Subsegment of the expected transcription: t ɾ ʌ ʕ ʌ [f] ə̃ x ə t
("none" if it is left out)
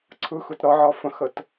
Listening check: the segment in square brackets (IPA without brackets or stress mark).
f